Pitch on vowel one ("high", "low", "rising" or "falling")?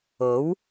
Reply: rising